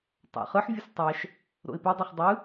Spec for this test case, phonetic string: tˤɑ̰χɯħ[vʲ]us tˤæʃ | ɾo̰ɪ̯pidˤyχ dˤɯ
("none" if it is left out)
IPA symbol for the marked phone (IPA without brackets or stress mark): vʲ